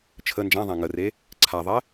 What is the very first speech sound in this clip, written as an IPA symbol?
t͡ʃʰ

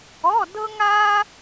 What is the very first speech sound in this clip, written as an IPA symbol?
ɔ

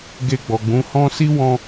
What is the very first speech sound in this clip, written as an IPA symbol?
ɡ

